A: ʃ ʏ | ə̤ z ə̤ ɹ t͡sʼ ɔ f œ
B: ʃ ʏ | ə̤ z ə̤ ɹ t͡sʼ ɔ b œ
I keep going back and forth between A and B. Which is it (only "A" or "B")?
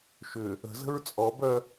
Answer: B